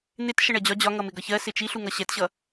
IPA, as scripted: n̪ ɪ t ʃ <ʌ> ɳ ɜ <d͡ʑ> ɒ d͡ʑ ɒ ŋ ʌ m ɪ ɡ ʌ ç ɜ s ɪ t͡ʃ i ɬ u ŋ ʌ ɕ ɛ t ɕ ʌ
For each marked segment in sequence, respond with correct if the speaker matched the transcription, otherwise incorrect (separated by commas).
correct, correct